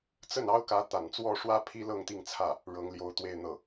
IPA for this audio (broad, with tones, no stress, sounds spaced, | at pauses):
t͡s ə˥˩ n ɑ˥ ʊ̯ k ä˧˥ t̪ a̰˨˩ n t͡s w ɔ˥˩ ʂ w ä˥ pʰ i˥ l ɤ˥˧ ŋ t̪ i˥˧ ŋ t͡sʰ ä˥˩ | ɻ ɤ˧˥ ŋ l j o˧˥ ʊ̯ t̪ w e˥˧ ɪ̯ n̪ ɤ˥˩